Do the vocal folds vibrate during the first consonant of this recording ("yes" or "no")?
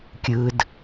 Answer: no